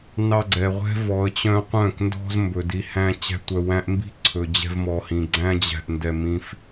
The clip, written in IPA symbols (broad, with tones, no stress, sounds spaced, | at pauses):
n ɑ˧ ɡ͡ǀ ɛ˨ ʁʷ ɛ̤˦ v ɔ˨˦ ə̯ t͡ɕ œ̃˦ qʷ œ̃˦˨ k n d ɔ̤˦ z m b ɵ˨ d i˧ h æ̃˦ t͡ɕ æ̤˧ tʷ œ˧ w æ̃˦ ʔ m b i̤˦ ǀʰ ɵ˨ d͡ʑ ɛ̤˧ v m ɔ˨ h ĩ˨ ɡ͡ǀ æ̃˦ d͡ʑ æ̤˧ ʔ n d ɛ˧ m ĩ˦ f